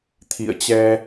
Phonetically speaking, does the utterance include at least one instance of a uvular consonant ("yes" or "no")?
no